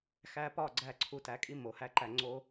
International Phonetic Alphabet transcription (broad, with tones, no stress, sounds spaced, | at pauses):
x æ˧ p ɒ˦˨ ɡ͡ǀ æ˧ ǀʰ u˧ t æ˨˦ kʼ i˦ m o˨ h æ˦ ǃ æ˧ ŋ͡ǀ o˦